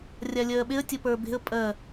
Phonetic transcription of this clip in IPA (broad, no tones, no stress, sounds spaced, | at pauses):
rʲ a lʲ ɜː ɓ e ə̯ tʲ ə p ə˞ b e̤ ə̯ pʼ ɜ